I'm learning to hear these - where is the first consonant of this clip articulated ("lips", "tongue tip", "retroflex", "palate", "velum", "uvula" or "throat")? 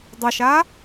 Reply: tongue tip